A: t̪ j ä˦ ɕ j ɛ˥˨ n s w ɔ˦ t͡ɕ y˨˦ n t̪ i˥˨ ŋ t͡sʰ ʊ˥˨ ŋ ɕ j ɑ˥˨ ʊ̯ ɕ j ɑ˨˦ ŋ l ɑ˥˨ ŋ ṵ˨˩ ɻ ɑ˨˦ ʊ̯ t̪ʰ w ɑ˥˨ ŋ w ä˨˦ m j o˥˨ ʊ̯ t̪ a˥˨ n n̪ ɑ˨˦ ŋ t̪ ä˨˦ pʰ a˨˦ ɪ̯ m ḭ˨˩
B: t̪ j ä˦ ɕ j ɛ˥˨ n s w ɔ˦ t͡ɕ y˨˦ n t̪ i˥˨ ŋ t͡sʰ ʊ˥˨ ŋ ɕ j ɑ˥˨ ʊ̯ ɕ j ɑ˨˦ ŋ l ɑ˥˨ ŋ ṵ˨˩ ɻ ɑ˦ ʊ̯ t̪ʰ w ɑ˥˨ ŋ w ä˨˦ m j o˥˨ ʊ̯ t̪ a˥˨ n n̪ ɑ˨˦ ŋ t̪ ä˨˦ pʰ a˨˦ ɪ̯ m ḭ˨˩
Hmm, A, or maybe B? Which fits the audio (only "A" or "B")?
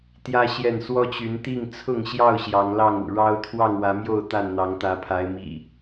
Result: B